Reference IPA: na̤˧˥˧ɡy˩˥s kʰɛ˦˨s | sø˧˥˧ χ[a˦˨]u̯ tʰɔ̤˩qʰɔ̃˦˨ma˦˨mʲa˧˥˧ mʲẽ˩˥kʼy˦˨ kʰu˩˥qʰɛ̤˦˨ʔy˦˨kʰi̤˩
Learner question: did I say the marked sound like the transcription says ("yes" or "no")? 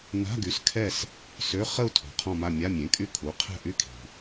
no